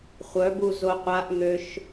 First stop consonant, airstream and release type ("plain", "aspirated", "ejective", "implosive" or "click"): plain